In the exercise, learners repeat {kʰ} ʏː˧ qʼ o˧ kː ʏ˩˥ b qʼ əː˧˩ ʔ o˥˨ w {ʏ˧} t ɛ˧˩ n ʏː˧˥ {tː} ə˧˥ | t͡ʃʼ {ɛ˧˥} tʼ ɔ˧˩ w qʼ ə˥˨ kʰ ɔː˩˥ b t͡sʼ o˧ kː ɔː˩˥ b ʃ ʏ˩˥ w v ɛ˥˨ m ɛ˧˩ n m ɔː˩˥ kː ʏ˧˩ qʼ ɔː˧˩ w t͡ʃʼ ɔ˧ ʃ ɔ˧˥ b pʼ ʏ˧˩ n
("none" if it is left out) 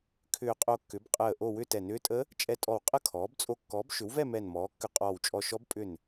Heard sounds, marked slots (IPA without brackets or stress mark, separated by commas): kʰ, ʏ˥˨, tʼ, ɛ˧˥